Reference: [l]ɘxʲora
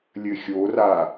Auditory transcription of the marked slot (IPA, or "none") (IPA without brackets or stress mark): lʲ